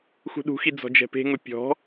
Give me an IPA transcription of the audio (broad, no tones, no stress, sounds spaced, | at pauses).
x ṳ ɗ ṳ x i d͡z ɔ̤ d͡ʒ ɛ̤ p e̤ ŋ ʊ pʲ ɔ̤